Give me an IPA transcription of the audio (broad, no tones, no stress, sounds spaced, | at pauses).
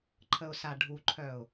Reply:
ǃʰ ə ʊ̯ s a ɖʱ u ǃʰ œ ʊ̯